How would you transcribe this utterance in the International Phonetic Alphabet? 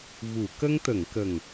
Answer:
v u˨˩˨ k ə˧ ŋ t̪ ə˨˩˨ ŋ k ə˨˩ ŋ

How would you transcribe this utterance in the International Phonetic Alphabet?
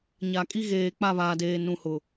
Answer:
ɲ a˨ kʼ i˦ ɣ eː˨ k͡p a˦˨ β aː˨ d eː˨ n ũ˨ h ʊ˨

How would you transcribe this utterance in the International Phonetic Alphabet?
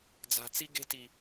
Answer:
d͡z a̤˨ t͡s i˦ ɡ e̤˦ t i˨

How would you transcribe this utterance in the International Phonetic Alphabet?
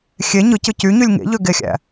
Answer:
xʲ e ɲ ɯ c ɯ c y ɲ y lʲ ŋ ḛ ʎ ø ɡ e xʲ æ̰

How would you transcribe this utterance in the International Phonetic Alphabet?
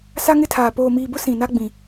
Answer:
s a˦ ŋ ɪ˦ tʰ aː˨ p oː˨ m iː˨ b ʊ˦ s ĩ˨ n a˦ ɡ͡b ĩ˨

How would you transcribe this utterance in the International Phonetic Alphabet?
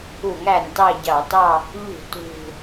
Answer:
u˧˩˧ ŋ æ˨˩ n t ɑ˦˨ ɟ ɑ˧˩˧ t ɑ˦˨ | ʎ ṳ˧˩˧ t ṳ˨˩

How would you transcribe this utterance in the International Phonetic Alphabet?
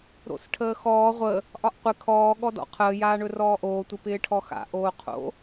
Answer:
ɾ o̰ s ʈʰ əː x ɔː ʁʷ ə | ʔ ɒ ʔ qʷ ɪ kʰ ɔː ɠ ɔ d ɔ̰ qʰ əː j aː ɳ ɵ r ɔː ʔ oː tʷ ɪ p ɪː ʈʰ ɔ x a̰ ʔ oː qʰ o̰

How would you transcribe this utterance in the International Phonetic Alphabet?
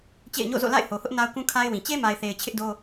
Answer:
t͡ɕ ḛ˦˨ ɪ̯ ɲ o̰˦˨ z o̰˦˨ l a̰˦˨ ɪ̯ h o˨ h ʊ˦ ʔ n a˦ ʊ̯ k ũ˦ kʰ a˦ ɪ̯ w ĩ˨ t͡ɕ e˦ m a˨ ɪ̯ θ e˨ ɪ̯ t͡ɕʰ ɪ˦ ʔ d o˦

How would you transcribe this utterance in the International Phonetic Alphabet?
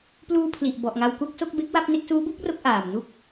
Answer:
p l uː˧ pʰ l i˨˩ ʔ b ɔ˨˩ ʔ ŋ a˧ w k u˥˩ k̚ s o˥˩ k̚ b e˦˥ k̚ w a˥˩ p̚ n e˦˥ k̚ s uː˦˥ b u˥˩ k̚ r o˦˥ k̚ ʔ aː˨˩ m n u˥˩ k̚

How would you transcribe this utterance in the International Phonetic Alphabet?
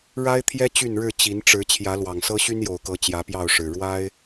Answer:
ɻ a˦ ɪ̯ t̪ʰ j ɛ˦ t͡ɕ y˥˨ n ɻ ɻ̩˥˨ t͡ɕ i˨˦ n ʈ͡ʂ ɻ̩˨˦ t͡ɕʰ j ä˨˦ l w ɑ˨˩ ŋ s ɤ˦ ɕ y˦ n j o˨˩ ʊ̯ k ɤ˨˦ t͡ɕ j ä˨˦ p j ɑ˥˨ ʊ̯ ʂ ɻ̩˨˩ ɻ w a˦ ɪ̯

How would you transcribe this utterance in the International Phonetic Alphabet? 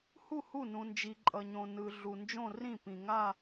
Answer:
h u˥˩ h u˥˩ n ũ˨ n d͡ʒ i˨ ǃʼ ʌ˨ ɲ õ˨ n ɯ˨ ɮ u˨ n d͡ʒ õ˥˧ r ĩ˥˩ p ĩ˨ ŋ a˥˧

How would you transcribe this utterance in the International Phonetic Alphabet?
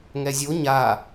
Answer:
ŋ ɛ zʲ o ɲ a

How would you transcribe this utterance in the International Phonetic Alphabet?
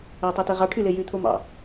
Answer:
æ tˤ e t e ʁ ɑ ʈʰ y l e j y t̪ʰ o m ɑ̰

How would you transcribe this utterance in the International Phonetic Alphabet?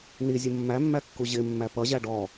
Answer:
n i zʲ ə mː æ mː æ kː u ʑ ɪ mː æ p ʌ ʑ æ ɖ ɔ

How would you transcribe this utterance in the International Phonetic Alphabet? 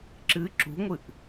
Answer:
ǁ ɨ ǁ ṳ ŋʷ ɨ ʔ

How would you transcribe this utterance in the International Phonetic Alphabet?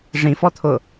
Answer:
ʐ ĩ f ɔ t̪ʰ ʊ

